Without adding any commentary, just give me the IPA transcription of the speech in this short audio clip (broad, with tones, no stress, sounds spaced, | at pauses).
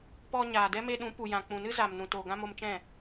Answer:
p ɔ˧ ɲ aː˨ d ɛ˦ m e˧ ɗ ũ˨˦ p u˨ j ã˨ k͡p ũ˨ n ɨ˦ z aː˨ m n ũ˨ t oː˨ ɡ ã˧ m o˧ m t͡ʃ ɛ̃˦˨